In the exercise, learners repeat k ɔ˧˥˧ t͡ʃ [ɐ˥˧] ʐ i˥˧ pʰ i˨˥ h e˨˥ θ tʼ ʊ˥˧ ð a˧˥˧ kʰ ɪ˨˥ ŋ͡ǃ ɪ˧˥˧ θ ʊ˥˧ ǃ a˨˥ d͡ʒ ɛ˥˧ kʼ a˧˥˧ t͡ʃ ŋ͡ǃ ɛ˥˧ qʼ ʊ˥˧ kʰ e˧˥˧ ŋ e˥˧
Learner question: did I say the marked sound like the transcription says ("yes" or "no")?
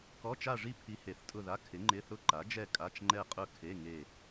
no